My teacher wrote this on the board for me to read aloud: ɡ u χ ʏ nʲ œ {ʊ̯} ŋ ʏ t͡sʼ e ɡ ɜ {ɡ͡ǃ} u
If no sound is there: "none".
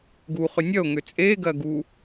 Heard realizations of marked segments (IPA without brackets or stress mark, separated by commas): ʊ̯, ɡ